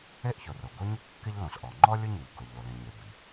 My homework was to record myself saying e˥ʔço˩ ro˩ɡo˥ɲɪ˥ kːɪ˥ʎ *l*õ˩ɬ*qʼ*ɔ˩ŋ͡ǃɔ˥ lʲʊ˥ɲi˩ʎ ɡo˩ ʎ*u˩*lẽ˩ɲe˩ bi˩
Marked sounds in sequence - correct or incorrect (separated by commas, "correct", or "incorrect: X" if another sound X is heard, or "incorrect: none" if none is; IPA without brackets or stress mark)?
correct, incorrect: ʔ, incorrect: o˩